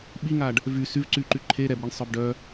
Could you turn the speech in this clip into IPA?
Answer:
ɓ i ŋ a ɖ | v y s y v ǀ y ǃ y ǃʰ e ɾ ɛ b ɾ e ɳ sˤ œ b ɖ œ

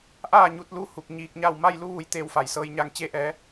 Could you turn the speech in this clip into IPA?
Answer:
ʔ aː˥˨ ɲ u˧ t̚ l u˧˥ h u˧˩ k̚ ɲ iː˧ k̚ ɲ a˥˨ w m a˥˨ j l u˧˥ ʋ u˩˧ j t̪ eː˧ w f a˩ j s ɤː˧ j ɲ a˧ ŋ t͡ɕ e˧ ʔ ɛː˩˧

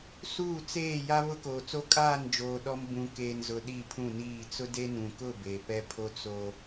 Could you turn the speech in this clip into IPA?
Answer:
s uː˦˨ t͡s eː˦˨ j a˦ β ʊ˦ k oː˨ t͡s o˦ kʼ aː˦˨ n d͡ʒ oː˨ ɗ ɔ˦ m b ũ˨ k eː˨ n z ʊ˨ ɗ i˦˨ pʰ ũ˦˨ n iː˦˨ t͡s ʊ˦ d e˦ n ũ˨ k ʊ˦˨ b e˨ p ɛ˦ pʰ o˦ t͡s o˦

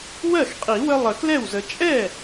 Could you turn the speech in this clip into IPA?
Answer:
w ɜ˥˩ x qʼ i˨˩˦ w ə˦ lˠ ə˨˩˦ k l ɛ˥˩ w z ə˨ t͡ʃʼ ɛ˥˩

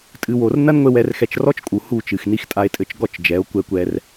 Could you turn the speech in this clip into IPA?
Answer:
tʼ ɨ˨ w o˨ r n ɐ˦ n ŋʷ e˧ w ɛ˧ r x ɛ˧ t͡ʃ r ɔ˦ t͡ʃ kʼ u˨ h u˦˨ t͡ʃ ɨ˨ x n i˧ x tʼ a˧ e̯ tʼ ɘ˨˦ t͡ʃ ɡ ɔ˦˨ t͡ʃ d͡ʒ ɛ˨˦ o̯ kʷ ɛ˧ kʷ ɛ˧ r

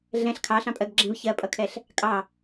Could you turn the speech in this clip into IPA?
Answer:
ɮ ɛ̃ ɬ kʰ ɑ ɬ ɑ̃ pʼ ɜ ɡ ɡ͡ǁ ɛ̃ v ç ɜ pʼ ʌ kʰ ɛ ɬ | kʼ ɑ

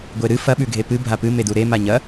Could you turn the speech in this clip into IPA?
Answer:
ɡʷ e ɾ ɨ f ɐ ɓ ʉ ɡʱ e p ɨ bʱ a p ɨ m e d u ɾ e m a ɲ ɐ

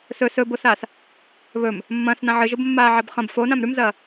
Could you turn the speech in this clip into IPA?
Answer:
s ɵ s ɵ b o s aː s | β ɵ m | mː ɐ̃ː s n ã ʕ ɨ ʒ o b mː aː ʕ a b χ ɐ̃ b f o n ã m ɾ ʉ m z ɐː

